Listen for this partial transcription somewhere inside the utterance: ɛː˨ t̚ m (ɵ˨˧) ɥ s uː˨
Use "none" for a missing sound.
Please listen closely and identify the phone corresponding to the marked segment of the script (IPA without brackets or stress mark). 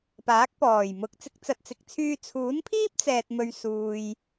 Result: ɵ˨